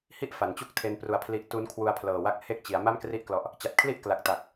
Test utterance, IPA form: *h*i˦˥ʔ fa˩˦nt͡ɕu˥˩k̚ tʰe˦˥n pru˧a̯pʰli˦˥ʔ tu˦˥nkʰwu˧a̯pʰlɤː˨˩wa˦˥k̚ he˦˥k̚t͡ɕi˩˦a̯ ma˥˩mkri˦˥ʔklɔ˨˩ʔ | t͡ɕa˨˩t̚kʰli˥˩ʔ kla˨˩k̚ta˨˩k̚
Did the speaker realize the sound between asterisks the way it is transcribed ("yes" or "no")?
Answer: yes